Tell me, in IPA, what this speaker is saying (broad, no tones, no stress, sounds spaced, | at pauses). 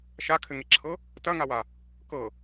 ʃ a kʰ ɘ ŋ e ǁʰ ɤ | t ɐ ŋ a w a | k ɤ